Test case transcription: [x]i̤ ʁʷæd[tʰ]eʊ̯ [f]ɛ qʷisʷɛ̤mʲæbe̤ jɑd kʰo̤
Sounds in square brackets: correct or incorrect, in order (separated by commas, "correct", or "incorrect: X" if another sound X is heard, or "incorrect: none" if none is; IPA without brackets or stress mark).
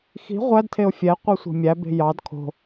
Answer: correct, correct, incorrect: fʲ